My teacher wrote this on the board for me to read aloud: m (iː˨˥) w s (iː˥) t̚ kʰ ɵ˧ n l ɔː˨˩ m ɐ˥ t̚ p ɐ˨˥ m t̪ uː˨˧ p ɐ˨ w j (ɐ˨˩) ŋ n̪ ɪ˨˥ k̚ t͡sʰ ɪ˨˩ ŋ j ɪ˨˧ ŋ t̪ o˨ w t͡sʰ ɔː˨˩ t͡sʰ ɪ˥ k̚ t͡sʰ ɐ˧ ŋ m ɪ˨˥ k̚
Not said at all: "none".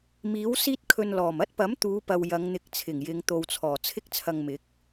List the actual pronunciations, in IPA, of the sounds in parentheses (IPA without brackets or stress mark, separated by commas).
iː˨˥, iː˥, ɐ˨˧